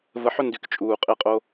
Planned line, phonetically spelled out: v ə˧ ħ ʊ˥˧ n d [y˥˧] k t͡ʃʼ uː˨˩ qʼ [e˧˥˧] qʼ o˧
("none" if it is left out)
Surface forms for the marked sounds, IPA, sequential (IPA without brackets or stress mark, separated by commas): y˧, e˧